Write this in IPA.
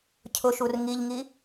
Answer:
cʰ ʊ ʃ u r ŋ i ʎ ŋ i

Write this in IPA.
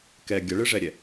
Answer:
k ɛ ɡʲ ʌ ɭ ɨ ʐ ɛ ɾʲ ɛ

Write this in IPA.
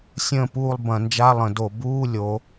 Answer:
sʲ ə̃ː˦˨ p uː˦˨ lˠ b ɐ̃˧˩˧ n d͡ʒ a˧˥˧ lˠ ə̃˧˩˧ d o˧˩˧ b uː˧˥˧ lʲ o˩˧

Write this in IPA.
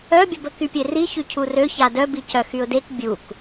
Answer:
œ bʲ ə b ə k y pʲ e r i ç y cʰ u r ø ç a d œ b i c œ x y ʊ̯ d e k bʲ u k

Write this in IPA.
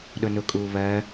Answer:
ɗ ʊ n ʊ kʼ uː β ɜ

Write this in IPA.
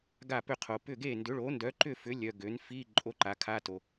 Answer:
ɡ a˥˨ p ø˥˨ qʰ o˧ p ʏ˥˨ ɡ e˥˨ n d ʏ˨˥ ɭ o˨˥ n d œ˨˥ ǃ ʏ˥˨ f ʏ˨˥ lʲ œ˧ ɡ ø˨˥ n f i˧˥˧ ǃʼ o˧˥˧ ǃ a˨˥ kʰ a˧˥˧ t o˧

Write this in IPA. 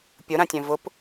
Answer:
pʲ ʊ ɾ ã tʲ œ̃ v ʊ p

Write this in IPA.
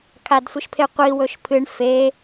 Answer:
kʰ a d sʷ ɨ ʃ pʰ e qʷ i w ɵ ʃ pʰ ɨ ɳ f e

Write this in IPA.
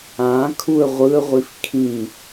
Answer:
ã kʰ u ə̯ ʁʷ ɯ ə̯ ʁʷ i f kʰ ĩ

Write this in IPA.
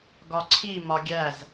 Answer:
ɡ ɒ ǀʰ i m ɒ ɡʲ æ z

